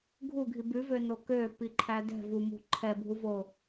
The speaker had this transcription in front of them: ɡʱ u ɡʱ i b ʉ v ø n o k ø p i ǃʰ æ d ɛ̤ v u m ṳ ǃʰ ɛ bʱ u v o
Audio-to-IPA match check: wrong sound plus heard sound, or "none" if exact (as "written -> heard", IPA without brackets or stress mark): none